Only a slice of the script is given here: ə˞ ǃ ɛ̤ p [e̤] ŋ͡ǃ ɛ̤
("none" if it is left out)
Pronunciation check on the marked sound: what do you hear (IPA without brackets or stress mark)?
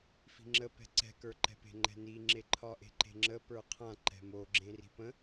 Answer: e̤